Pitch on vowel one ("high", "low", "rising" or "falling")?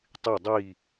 falling